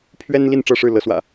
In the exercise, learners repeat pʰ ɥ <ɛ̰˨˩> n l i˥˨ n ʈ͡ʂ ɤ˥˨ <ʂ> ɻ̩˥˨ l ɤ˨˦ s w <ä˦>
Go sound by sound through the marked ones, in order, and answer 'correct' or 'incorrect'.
incorrect: ɛ˦, correct, incorrect: ä̰˨˩

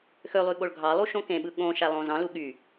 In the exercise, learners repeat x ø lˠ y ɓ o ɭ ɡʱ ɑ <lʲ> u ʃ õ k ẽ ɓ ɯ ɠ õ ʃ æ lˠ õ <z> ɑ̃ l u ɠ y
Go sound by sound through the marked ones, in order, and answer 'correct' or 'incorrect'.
incorrect: lˠ, correct

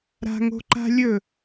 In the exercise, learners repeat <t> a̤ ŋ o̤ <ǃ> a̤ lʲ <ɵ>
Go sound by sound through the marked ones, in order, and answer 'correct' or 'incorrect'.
incorrect: ɾ, correct, correct

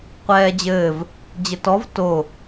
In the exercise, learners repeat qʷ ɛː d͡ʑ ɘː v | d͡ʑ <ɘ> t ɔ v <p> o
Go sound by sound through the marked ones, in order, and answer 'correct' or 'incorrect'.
correct, incorrect: t

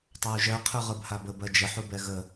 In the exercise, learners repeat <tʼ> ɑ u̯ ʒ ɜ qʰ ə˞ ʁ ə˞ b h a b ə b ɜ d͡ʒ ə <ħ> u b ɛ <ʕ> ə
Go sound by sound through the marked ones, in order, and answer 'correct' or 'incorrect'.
incorrect: tˤ, correct, incorrect: ɣ

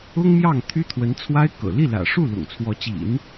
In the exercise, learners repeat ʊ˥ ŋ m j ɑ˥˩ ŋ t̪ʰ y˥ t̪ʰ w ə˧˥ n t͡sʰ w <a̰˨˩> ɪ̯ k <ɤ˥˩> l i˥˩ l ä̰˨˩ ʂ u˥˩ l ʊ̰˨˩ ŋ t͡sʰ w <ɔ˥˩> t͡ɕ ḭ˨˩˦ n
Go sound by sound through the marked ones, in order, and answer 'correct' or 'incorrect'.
incorrect: a˥, incorrect: ɤ̰˨˩, incorrect: ɔ˧˥

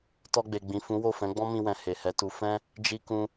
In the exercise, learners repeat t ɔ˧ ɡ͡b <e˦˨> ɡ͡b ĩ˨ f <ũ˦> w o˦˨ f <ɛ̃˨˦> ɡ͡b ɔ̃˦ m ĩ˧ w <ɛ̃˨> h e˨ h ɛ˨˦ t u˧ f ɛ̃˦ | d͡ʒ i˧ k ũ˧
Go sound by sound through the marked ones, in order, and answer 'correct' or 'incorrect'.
incorrect: e˨, incorrect: ũ˨˦, correct, correct

